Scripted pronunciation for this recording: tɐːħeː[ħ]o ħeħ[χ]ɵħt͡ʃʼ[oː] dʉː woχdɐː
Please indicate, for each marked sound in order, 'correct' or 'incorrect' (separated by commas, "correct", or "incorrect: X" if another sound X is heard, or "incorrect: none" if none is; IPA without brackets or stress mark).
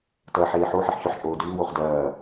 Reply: correct, incorrect: ç, correct